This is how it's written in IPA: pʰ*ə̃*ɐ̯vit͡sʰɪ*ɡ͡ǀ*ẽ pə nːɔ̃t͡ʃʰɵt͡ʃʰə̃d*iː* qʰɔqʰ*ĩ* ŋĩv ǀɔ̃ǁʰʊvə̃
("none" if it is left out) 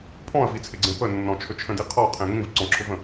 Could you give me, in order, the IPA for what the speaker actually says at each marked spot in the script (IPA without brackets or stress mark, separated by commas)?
ɔ̃, ɡ͡ǀ, i, ẽ